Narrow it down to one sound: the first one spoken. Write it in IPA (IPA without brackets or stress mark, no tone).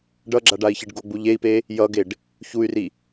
ɖ